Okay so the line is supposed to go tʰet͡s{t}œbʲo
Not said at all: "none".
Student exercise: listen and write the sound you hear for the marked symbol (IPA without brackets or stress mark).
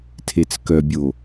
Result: k